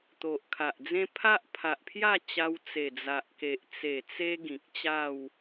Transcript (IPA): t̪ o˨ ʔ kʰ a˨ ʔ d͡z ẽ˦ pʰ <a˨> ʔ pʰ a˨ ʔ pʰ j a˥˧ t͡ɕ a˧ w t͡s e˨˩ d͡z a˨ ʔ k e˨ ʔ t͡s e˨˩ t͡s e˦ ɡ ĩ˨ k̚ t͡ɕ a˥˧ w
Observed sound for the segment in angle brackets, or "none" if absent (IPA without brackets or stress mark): a˦